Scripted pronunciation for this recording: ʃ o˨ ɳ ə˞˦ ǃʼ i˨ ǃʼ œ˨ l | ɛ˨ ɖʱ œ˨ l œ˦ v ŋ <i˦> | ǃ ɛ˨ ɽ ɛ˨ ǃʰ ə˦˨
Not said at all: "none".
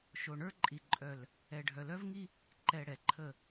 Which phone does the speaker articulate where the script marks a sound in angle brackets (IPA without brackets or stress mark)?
i˦